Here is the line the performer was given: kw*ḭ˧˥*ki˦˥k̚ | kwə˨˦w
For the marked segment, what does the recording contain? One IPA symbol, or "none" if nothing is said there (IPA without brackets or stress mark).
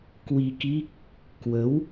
i˧